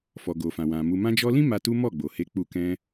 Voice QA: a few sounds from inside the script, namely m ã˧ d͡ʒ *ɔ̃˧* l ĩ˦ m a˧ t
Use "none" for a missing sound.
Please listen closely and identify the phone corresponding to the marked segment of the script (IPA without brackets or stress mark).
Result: ɔ˧